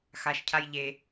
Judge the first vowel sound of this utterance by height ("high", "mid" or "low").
low